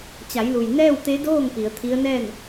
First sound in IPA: t͡ɕ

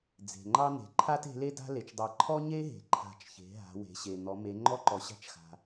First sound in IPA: d͡z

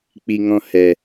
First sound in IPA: k͡p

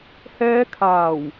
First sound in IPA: h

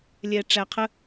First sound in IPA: lʲ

